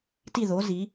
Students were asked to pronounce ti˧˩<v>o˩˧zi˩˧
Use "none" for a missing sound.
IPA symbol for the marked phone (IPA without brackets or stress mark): ð